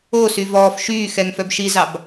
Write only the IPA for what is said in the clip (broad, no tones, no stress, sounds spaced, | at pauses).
oː s y v ɔː f ʃ yː x ɛ ŋ f œ b ʃ i z ɑ b